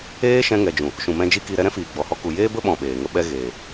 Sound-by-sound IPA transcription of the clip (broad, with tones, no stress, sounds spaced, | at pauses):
eː˦ ʃ ɛ̃˧ ŋ ɛ˨ d͡ʒ ũ˨ | ʃ ũ˨ m ɛ̃˧ d͡ʒ i˦ k i˧ ɾ ɛ˧ ɾ ɛ̃˦ f iː˨ ɡ͡b ɔ˨ h ɔ˧ k u˨ j eː˦ b ə˦ ɓ ɔ̃˨ ɓ eː˨ ŋ ə˦ ɓ ɛ˦ ɣ eː˨